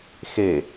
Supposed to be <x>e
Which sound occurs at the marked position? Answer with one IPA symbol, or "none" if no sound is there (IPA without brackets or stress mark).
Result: x